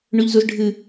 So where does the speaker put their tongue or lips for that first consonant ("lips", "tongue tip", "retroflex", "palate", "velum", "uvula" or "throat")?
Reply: retroflex